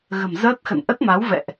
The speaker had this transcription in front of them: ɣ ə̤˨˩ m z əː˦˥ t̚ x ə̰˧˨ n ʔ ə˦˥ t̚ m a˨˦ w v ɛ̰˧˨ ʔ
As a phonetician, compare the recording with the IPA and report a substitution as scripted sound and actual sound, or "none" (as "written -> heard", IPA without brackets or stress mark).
none